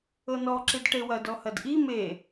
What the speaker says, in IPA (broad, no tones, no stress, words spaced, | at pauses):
ɤnɔǁid ʈewɐdɔ hɐdʔi me